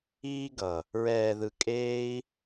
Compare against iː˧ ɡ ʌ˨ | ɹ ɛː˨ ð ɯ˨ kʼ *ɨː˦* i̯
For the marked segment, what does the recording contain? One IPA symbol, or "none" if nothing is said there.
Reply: eː˦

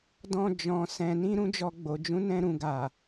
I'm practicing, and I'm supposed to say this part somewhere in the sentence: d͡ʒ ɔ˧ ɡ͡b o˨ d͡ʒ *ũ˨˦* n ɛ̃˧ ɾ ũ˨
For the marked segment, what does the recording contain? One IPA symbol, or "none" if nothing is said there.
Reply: ũ˨˦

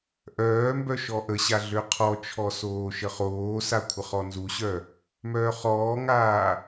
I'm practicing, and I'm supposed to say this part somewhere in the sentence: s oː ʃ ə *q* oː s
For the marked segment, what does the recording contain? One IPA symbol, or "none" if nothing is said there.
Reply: χ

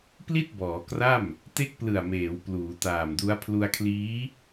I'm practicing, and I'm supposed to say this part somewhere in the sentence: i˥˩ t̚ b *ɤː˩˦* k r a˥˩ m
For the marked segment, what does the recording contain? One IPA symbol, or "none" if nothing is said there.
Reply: ɔː˩˦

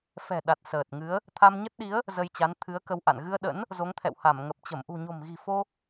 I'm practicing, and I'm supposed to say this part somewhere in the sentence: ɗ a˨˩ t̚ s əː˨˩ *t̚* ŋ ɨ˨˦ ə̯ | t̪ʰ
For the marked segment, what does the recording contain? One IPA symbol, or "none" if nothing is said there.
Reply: t̚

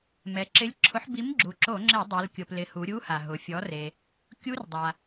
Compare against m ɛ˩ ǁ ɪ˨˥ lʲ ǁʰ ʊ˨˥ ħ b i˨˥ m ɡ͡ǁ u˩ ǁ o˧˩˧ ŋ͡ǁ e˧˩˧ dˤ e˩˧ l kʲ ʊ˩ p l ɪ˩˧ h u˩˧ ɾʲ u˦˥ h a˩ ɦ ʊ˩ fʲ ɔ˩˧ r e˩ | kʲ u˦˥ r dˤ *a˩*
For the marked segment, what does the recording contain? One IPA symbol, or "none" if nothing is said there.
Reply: a˩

